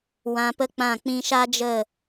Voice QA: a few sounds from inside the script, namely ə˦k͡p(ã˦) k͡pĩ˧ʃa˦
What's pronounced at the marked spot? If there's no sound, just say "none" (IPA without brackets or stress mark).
ã˦˨